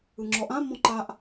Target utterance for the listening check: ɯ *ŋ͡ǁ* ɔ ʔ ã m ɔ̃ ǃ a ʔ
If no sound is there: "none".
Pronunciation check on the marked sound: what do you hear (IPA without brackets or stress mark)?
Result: ŋ͡ǁ